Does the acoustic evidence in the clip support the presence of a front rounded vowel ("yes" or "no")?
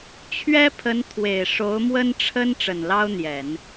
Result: no